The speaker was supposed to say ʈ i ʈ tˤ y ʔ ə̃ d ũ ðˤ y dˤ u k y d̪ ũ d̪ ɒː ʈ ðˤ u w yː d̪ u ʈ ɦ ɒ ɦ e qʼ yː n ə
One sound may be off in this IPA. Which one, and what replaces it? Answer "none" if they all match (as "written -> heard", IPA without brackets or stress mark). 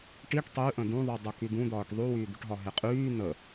none